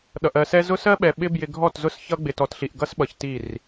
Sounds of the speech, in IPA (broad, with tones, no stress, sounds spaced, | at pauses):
ɗ ʌ˨ ʔ ɜ˨ s ɛ˦ z ʊ˦ s ɜ˦ ɓ ɛ˨ ɓ ɪ˦ b j ɪ˨ ɡʱ ɔ˦˨ t z ʊ˦ s ç ʌ˦ ɡ͡b ɪ˨ t ɔ˨ t ɬ i˨ ʔ ɡ ʌ˦ s ɓ ʌ˨ ç t i˦˨ r